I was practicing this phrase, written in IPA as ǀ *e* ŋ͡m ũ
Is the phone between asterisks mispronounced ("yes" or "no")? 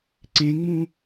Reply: yes